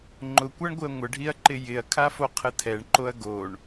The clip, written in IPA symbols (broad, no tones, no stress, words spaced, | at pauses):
ŋ͡ǃʊkʷaɳɡʷɪɐ̯ ŋʷəɖʱiɐ̯ǃɪ jɪɐ̯kʰafoqʰə tʰɛɳǃoɐ̯ ɡoɳ